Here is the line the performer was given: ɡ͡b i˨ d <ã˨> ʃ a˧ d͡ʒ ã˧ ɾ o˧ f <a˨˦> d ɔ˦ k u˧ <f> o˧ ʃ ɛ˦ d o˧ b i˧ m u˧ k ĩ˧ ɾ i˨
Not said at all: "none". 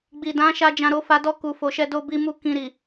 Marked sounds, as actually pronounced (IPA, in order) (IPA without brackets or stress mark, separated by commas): ã˨˦, a˧, f